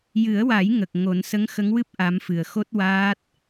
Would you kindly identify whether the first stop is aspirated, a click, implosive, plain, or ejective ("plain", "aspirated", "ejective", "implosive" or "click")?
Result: plain